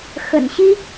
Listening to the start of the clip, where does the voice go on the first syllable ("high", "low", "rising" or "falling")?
low